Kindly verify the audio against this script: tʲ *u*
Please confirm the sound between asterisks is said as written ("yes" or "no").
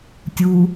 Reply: yes